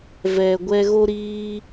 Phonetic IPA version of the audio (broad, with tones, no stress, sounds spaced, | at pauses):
v ɛ˨ ɡʷ ɛ˧ ɣ o˦ ɾ iː˦